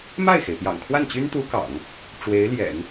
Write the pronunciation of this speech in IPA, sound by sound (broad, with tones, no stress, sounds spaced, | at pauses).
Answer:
m a˥˩ ɪ̯ x e˩ ɪ̯ p j ɑ̰˨˩ ŋ kʰ w a˥˩ n t͡ɕ y˥ n t̪ u˧˥ k ɑ̰˨˩˦ ŋ | ʈ͡ʂ w e˧˥ ɪ̯ l j ɛ̰˨˩˦ n